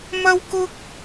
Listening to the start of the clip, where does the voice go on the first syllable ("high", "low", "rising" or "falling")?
high